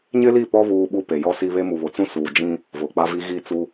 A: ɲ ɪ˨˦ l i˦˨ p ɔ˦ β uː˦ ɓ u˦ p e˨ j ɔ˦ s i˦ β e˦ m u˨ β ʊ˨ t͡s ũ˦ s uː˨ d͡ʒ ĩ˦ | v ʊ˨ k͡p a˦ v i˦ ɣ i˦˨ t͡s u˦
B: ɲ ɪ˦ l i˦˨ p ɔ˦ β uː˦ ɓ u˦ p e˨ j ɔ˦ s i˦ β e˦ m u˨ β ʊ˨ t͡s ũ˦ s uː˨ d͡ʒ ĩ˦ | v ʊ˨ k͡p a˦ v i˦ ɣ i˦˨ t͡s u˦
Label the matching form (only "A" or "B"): B